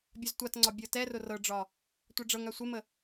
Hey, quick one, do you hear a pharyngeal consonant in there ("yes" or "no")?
no